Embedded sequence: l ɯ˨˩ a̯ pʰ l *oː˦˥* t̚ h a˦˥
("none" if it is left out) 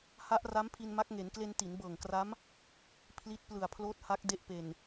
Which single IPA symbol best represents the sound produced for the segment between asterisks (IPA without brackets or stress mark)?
oː˦˥